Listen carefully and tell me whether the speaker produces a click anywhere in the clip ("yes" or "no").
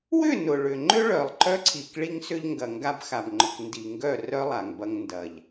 yes